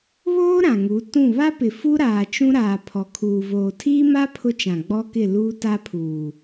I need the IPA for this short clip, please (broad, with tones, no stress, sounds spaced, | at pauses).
β oː˦ ɾ ã˨ ŋ u˨˦ t ũ˦˨ β a˦ p ɪ˨ f u˦ ɾ aː˨ t͡ʃ ũ˦ ɾ aː˨ pʰ ɔ˨ kʰ uː˨ v oː˨ tʰ iː˦ m a˦ pʰ ʊ˦ t͡ʃ ã˨ ɡ͡b ɔ˦ k ɪ˦˨ l uː˦ t a˦ pʰ uː˨